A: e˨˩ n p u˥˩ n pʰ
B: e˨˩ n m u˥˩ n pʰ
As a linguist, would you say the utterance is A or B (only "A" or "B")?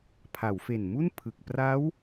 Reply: B